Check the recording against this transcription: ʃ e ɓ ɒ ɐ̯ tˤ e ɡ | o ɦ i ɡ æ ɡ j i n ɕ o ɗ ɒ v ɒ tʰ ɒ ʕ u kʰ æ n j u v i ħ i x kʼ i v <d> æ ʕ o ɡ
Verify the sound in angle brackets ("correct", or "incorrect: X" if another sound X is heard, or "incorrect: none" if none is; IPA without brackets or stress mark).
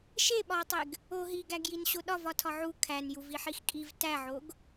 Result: incorrect: t